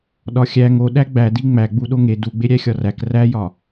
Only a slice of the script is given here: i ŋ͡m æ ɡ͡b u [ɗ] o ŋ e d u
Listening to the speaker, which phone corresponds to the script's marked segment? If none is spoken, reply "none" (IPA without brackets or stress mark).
ɗ